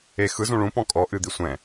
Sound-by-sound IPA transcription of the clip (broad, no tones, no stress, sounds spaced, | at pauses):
e x ɯ z ũ ɭ ũ p ɔ̃ kʼ ɔ ʔ ɨ d̪ i sʷ ɛ̃